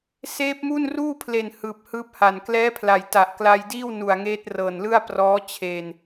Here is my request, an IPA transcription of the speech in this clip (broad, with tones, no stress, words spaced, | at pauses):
seː˦˥p̚mu˥˩n ruː˥˩pʰle˨˩n hɯː˨˩p̚hɯː˦˥p̚ha˨˩n klɛː˦˥pʰla˨˩j ta˨˩ʔkla˧jdiː˥˩w nu˨˩a̯ŋeː˦˥t̚rɤː˨˩nlɯ˥˩a̯ prɔː˦˥ t͡ɕʰeː˧n